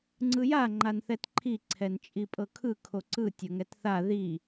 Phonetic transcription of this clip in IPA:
ŋ͡ǀ ɯ j a ŋ͡ǃ a n θ ɛ t ǃʰ i ǀʰ ɛ n t͡ʃʼ i pʼ ɤ kʰ ɯ kʰ o ǀ ɯ tʲ ɤ ŋ ɛ t θ a ð i

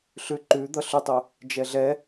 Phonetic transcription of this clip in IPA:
ɬ ʉ ǃ ʉ d̪ ʌ ɬ ʏ tˤ u | d͡ʒ ɛ ɮ ɛ

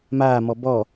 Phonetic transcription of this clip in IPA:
m aː m ɔ b ɔ

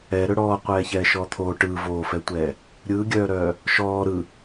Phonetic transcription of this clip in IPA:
ɛ ɾ ɵ ɽ ɔː qʷ ɛː ç ɛː ʃ ɔː t̪ʰ oː ʈ ɯː v oː f ɛ tʷ ɛː | ɾʲ ɯː ɡʲ œː ɾ œː | ʃ ɔː ɾ ɯ

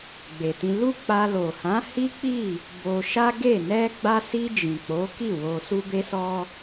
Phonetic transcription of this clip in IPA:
ɡ͡b e˨ t ĩ˧ l u˦ k͡p a˧ l o˨ h ã˨˦ h i˦ k͡p i˦˨ | b o˧ ʃ a˦ ɡ e˦˨ n ɛ˧ ɡ͡b a˧ s i˧ d͡ʒ ĩ˨ k͡p o˨˦ k i˦˨ w o˧ s u˦ b e˦ s ɔ˦

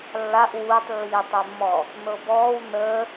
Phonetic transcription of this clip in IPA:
lː a ʔ w uː tˤ lː iː tˤ ɛ mː ɔː | n ɤ b ɔː w n əː

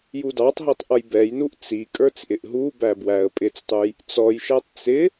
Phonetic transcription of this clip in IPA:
j u d ɑ tˤ ɦ i tˤ ʔ ʌ j b ɛ j n u ʔ t͡s i kʼ ə˞ t͡s ʔ ɪ ʔ ɦ u b æ b w æ ə̯ pʼ ɪ t͡s tˤ u j | t͡s ɔ j ʃ æ tˤ t͡s ɪ

